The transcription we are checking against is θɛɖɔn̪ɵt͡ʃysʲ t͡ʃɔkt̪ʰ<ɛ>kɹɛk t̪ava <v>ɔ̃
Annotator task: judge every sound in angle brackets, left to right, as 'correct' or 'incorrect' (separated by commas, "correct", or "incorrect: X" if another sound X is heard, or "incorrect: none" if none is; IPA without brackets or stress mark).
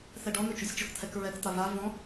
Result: correct, correct